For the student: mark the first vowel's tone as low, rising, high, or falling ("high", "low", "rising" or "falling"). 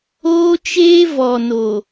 high